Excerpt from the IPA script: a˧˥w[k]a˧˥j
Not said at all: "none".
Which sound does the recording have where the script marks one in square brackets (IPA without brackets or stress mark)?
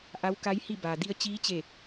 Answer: k